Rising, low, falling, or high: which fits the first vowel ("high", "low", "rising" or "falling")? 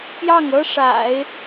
falling